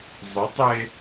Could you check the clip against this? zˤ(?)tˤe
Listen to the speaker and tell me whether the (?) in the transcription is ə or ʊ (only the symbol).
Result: ʊ